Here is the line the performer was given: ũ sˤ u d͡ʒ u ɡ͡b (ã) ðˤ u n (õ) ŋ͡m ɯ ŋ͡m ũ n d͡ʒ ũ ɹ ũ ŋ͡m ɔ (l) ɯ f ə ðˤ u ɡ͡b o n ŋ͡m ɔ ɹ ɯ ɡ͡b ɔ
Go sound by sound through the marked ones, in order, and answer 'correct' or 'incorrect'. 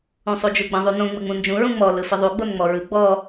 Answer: incorrect: ə̃, correct, correct

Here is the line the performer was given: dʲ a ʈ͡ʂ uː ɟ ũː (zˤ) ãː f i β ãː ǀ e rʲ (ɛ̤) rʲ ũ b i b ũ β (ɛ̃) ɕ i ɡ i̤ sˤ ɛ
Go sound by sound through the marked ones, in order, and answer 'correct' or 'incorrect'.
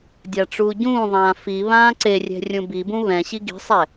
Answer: incorrect: ðˤ, correct, correct

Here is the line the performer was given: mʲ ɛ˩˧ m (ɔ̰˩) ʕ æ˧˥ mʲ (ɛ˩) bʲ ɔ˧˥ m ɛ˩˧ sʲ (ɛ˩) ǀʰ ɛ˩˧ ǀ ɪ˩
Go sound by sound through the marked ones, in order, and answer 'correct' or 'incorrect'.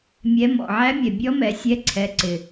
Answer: correct, correct, incorrect: ɛ˧˥

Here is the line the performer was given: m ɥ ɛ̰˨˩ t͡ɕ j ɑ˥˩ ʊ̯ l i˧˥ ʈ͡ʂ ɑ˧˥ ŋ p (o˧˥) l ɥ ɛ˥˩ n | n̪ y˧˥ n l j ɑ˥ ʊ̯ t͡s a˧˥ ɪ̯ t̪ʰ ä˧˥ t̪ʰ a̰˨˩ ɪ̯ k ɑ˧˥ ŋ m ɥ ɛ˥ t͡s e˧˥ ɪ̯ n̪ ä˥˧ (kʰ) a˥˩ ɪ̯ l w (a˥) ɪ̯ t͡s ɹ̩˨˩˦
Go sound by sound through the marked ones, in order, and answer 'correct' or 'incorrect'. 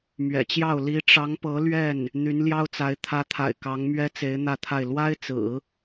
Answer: incorrect: ɤ˧˥, incorrect: t̪ʰ, correct

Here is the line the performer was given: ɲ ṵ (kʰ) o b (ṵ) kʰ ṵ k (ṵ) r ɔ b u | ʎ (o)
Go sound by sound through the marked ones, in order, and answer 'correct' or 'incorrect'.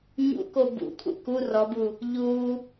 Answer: incorrect: k, correct, incorrect: u, incorrect: u

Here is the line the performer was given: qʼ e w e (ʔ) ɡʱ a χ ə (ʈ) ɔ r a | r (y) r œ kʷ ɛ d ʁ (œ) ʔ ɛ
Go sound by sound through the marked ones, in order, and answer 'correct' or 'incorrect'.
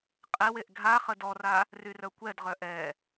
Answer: correct, incorrect: d, correct, correct

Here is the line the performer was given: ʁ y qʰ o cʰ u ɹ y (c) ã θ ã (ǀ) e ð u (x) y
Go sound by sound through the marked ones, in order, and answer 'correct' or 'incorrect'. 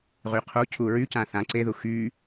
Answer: correct, correct, correct

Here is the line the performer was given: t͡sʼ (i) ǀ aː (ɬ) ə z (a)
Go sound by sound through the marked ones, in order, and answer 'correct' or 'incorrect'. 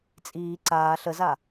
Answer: incorrect: iː, correct, correct

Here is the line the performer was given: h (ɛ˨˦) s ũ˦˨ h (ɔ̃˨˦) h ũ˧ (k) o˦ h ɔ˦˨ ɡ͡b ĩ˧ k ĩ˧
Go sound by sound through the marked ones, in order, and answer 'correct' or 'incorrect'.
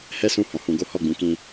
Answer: incorrect: ɛ˦, correct, incorrect: ɡ

